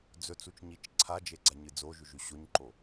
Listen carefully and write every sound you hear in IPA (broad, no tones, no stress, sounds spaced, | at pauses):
d͡z ɵ t͡s u t͡ʃ ɲ i t͡ʃ ǀʰ a d͡ʒ e ɡ͡ǀ a ɲ ɨ d͡z o ʒ ʉ ʒ ʉ ɕ o ɲ ǃ o